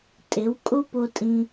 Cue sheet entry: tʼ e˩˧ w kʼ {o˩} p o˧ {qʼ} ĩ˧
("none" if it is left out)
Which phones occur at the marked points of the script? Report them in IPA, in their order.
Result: o˧, tʼ

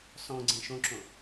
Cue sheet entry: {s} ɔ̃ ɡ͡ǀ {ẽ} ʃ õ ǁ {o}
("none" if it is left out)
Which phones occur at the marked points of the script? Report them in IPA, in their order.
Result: s, ẽ, õ

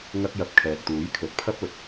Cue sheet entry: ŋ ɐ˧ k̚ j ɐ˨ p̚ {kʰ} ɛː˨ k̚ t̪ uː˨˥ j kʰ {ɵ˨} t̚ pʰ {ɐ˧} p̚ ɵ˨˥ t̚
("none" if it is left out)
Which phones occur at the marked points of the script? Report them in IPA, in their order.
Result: kʰ, ɵ˨˥, ɐ˥

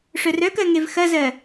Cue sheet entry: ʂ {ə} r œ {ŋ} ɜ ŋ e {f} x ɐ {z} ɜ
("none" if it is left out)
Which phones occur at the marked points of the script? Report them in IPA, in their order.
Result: œ, k, v, z

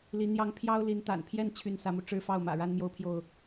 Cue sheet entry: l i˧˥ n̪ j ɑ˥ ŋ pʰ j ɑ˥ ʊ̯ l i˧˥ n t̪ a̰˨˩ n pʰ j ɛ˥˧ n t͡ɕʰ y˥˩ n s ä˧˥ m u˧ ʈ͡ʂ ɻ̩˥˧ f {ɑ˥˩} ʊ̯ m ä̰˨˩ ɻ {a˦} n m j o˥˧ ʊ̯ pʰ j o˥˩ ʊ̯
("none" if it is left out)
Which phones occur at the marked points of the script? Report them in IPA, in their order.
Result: ɑ˥˩, a˥

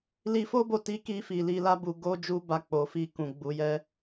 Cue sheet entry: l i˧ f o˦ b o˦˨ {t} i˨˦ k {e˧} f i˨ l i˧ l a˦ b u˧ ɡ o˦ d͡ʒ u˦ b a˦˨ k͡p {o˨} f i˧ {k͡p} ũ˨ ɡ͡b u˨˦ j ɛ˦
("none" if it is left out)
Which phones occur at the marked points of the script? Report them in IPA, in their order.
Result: t, i˧, o˨, k

